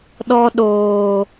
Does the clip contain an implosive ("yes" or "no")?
yes